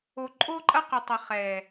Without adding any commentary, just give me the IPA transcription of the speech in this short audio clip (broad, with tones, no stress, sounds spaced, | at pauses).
o˨ ǃʼ o˦ ǃʼ ɐ˦ q ɪ˨ tˤ ɐ˨ χ ɛ˨